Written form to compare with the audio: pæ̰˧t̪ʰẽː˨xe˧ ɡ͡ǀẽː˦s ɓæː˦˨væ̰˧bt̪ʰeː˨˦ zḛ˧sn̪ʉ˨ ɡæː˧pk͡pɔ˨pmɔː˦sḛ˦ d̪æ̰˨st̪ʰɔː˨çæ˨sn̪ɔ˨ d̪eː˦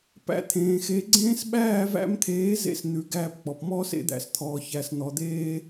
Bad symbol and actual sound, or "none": b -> m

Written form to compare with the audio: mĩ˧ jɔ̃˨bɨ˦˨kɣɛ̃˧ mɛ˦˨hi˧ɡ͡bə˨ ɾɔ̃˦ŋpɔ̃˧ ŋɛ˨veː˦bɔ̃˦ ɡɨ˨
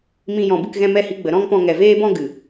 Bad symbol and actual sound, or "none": none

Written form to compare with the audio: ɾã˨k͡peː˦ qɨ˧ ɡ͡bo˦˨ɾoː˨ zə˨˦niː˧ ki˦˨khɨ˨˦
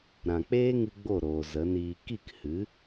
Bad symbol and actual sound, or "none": q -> ŋ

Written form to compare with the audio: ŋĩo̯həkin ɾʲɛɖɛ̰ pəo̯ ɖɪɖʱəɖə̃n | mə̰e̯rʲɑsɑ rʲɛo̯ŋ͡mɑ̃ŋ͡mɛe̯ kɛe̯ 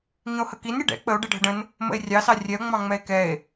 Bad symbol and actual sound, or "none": p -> k͡p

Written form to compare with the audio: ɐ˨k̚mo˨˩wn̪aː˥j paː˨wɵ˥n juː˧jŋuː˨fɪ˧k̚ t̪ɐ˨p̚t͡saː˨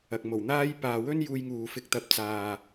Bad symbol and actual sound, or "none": none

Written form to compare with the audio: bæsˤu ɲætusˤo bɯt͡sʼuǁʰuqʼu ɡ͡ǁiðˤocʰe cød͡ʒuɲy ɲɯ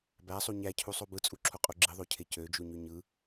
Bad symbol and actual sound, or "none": t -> cʰ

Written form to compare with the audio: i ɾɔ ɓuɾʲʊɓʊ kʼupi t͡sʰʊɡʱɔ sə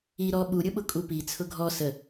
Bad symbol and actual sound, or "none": none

